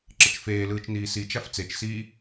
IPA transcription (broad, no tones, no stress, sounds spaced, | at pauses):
ǁ ə t͡ʃ f eː l ɯː t͡ʃ n iː s i t͡ʃ a f t͡s e t͡ʃ s iː